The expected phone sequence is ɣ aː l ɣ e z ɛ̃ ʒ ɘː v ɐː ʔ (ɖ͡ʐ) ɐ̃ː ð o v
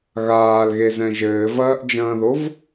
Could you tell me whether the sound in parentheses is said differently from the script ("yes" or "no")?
yes